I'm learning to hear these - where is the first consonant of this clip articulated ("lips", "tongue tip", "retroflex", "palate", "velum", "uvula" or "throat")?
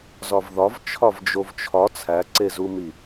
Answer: tongue tip